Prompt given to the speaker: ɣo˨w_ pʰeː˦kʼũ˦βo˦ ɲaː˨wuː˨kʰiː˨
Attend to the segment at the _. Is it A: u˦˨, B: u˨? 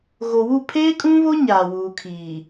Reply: A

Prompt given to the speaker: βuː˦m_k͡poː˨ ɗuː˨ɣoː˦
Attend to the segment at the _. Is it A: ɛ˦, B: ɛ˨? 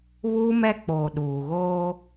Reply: A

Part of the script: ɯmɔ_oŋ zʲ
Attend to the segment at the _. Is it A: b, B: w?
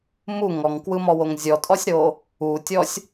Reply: B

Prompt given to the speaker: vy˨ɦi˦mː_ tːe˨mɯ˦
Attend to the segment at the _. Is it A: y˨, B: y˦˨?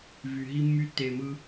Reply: B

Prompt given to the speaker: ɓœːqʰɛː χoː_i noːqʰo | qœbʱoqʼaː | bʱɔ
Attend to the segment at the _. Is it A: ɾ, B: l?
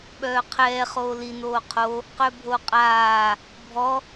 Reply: B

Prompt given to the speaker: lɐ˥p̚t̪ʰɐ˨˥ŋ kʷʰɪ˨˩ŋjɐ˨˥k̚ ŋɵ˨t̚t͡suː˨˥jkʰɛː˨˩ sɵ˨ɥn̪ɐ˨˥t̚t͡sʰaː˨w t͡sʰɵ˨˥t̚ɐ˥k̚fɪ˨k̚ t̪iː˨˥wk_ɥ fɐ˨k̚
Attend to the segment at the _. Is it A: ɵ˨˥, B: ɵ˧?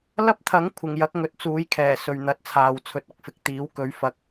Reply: A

